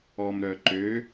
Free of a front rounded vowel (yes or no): no